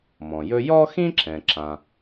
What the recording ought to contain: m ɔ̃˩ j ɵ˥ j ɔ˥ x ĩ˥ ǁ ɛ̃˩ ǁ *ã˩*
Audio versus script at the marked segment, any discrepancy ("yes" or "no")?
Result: no